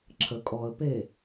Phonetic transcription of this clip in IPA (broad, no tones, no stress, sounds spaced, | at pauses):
ǁʰ ə kʼ ɔ ə̯ p e